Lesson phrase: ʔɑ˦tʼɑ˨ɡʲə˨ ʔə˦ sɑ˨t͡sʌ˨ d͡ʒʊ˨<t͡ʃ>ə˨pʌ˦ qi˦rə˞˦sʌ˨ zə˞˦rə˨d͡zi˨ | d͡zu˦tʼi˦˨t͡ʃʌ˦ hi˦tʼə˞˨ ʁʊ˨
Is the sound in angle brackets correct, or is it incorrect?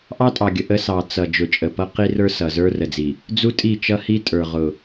incorrect